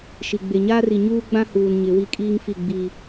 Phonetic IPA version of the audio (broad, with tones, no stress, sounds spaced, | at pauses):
ʃ i˨ ɡ͡b e˨ ɲ aː˦ r i˨ ɲ uː˦ ɡ͡b ã˦ h uː˨ n ɲ ɪ˨˦ w i˦ kʼ iː˦ ŋ f i˦˨ ɡ͡b iː˦